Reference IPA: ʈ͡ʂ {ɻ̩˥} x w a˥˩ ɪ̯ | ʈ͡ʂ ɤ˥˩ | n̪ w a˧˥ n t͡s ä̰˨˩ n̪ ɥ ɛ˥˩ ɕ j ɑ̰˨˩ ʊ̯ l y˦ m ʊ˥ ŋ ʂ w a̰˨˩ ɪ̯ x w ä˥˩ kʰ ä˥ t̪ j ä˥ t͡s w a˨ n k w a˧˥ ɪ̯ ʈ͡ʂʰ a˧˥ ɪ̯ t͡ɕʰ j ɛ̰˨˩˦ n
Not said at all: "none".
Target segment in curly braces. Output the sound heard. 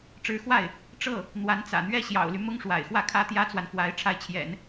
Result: ɻ̩˧˥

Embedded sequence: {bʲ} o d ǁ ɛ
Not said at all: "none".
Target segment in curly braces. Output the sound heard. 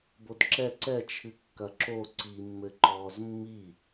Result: b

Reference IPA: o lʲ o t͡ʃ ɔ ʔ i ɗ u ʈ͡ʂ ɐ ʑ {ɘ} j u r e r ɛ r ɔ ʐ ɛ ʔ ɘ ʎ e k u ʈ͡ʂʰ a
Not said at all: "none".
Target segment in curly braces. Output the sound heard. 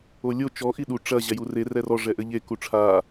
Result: ɛ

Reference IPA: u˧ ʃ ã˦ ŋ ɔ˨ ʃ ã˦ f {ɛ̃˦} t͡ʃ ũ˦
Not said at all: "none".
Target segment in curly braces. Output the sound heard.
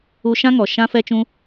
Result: ɛ˦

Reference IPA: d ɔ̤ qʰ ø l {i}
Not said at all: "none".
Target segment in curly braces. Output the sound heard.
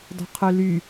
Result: y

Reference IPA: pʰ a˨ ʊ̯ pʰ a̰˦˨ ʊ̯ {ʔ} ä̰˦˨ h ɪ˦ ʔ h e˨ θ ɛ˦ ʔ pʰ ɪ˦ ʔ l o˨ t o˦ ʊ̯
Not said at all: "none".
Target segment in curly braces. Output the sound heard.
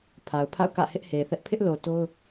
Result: k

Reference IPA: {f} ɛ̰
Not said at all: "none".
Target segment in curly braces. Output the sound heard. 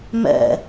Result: m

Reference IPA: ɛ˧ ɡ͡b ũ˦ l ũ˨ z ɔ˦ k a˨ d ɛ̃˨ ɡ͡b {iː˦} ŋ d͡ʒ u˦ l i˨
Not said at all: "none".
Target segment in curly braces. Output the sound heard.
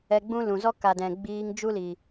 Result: iː˦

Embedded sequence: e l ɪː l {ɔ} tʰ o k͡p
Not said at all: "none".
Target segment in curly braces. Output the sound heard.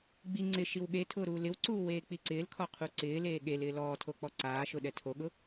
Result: ɔː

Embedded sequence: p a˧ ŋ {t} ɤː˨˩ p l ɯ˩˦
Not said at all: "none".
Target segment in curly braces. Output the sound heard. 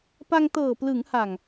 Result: t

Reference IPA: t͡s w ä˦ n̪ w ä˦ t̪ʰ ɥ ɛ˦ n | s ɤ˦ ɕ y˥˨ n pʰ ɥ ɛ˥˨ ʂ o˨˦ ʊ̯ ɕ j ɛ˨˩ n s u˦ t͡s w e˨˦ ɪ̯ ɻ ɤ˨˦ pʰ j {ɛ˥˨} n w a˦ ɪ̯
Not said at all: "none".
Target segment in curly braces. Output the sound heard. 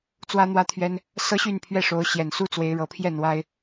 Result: ɛ˥˨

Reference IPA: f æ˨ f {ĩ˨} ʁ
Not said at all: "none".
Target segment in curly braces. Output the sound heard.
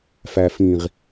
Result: ĩ˨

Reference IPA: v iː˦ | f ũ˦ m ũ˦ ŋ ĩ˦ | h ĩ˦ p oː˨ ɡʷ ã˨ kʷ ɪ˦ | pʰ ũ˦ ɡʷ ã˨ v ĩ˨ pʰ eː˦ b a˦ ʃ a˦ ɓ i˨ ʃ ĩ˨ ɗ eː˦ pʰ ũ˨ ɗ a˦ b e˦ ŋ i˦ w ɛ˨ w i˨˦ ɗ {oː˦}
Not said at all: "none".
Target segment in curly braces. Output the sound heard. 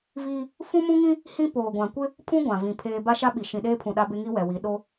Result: o˦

